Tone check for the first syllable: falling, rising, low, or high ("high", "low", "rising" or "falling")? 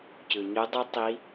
low